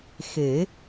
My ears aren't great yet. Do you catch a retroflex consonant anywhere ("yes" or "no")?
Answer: no